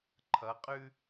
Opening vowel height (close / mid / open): mid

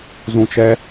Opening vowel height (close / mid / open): close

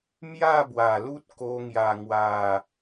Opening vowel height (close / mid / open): open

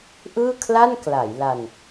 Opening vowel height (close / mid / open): close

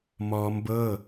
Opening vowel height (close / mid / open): mid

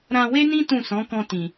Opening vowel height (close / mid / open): open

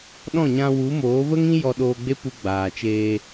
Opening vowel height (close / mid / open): mid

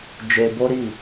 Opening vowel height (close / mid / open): mid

